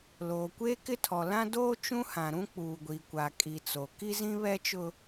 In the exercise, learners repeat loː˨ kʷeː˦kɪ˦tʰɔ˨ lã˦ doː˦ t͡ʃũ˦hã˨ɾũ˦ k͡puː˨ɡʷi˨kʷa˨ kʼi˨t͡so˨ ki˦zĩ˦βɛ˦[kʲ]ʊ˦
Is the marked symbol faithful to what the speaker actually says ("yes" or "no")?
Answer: no